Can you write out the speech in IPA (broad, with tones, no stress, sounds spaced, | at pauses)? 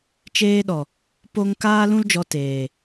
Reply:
t͡ʃ eː˧ ɗ ɔ˨ | p o˧ ŋ k aː˦ l ũ˦ l d͡ʒ ɔ˧ t eː˨